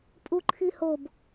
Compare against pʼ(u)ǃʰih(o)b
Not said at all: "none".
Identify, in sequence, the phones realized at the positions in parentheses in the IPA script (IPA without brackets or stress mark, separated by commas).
u, o